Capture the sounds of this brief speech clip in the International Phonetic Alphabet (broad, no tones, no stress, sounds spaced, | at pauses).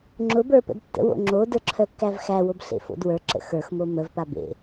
ŋ͡ǁ ʊ b ə˞ p ə̰ d tː ə̰ w o̰ ŋ͡ǁ o d ə˞ ǁʰ œ kː æ v x æ w o b ɬ ḛ f o̰ d w ə˞ ǁ ə̰ x ə˞ x m o m ə v p a b ḛ